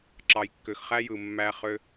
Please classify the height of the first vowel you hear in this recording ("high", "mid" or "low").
low